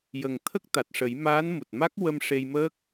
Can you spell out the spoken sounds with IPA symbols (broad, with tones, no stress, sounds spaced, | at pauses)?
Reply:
j ə˨˩ ŋ t̪ʰ ə˦˥ k̚ t̪ a˨˩ t̚ ʂ ə˨˩˦ j m aː˧˥ n m u˨˩ t̚ m a˦˥ k̚ w ə˧ m ʂ e˧ j m əː˦˥ k̚